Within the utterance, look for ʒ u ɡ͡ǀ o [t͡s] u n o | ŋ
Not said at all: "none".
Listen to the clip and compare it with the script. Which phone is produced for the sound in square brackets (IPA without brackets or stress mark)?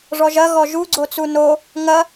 t͡s